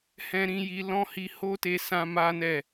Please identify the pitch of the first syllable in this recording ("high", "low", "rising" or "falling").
high